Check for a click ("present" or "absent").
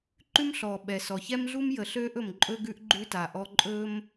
present